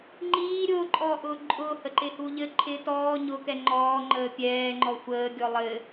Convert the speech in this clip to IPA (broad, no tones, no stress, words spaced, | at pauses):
ŋ͡ǃiː ɾʲʊːǃʼɔːʔʊː ǃʼʊːhəǃɪhu ʎɘ ǃʰɪ tɔː ɲʊkɛ ŋ͡ǃɔːŋ͡ǃəː pʲɛːŋ͡ǃɔ xʷəːɡʲɔ lˠɘ